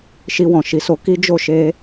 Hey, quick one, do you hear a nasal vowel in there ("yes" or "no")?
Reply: yes